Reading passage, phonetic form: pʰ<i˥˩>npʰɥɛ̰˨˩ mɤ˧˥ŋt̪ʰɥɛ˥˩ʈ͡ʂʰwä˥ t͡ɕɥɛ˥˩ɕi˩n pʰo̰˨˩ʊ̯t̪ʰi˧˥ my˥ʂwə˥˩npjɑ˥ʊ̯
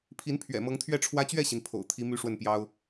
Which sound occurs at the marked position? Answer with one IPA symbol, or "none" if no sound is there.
i˧˥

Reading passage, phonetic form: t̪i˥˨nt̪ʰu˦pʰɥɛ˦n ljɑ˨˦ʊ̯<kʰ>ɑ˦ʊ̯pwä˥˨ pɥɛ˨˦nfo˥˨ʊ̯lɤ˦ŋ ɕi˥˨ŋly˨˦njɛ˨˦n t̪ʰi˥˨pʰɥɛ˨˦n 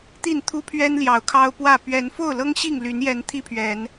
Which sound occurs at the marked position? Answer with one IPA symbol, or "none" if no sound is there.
kʰ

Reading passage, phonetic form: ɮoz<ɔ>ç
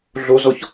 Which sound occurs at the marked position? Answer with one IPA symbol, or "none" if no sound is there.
ɔ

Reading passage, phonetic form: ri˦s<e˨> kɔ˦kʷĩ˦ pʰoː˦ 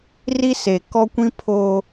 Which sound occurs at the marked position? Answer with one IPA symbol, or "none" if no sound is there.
e˨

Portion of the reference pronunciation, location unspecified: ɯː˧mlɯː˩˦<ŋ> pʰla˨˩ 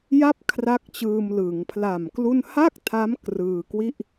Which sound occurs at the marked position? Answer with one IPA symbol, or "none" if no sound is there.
ŋ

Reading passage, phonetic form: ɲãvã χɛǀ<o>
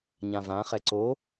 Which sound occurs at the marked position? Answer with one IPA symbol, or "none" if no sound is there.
o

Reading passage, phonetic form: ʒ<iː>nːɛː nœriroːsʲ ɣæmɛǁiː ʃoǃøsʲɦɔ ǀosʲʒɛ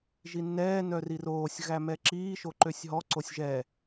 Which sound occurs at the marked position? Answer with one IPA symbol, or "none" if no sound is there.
i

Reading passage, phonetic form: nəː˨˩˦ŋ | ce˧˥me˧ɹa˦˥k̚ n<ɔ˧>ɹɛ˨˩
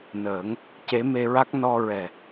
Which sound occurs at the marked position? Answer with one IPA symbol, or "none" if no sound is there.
ɔ˧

